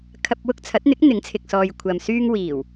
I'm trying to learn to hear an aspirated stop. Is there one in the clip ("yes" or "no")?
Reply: yes